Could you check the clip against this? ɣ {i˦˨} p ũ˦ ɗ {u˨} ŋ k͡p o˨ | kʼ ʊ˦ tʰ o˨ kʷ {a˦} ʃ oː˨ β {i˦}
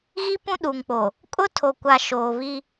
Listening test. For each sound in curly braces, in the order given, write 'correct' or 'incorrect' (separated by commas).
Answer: incorrect, correct, incorrect, correct